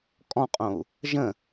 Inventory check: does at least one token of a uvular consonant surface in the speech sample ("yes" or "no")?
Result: yes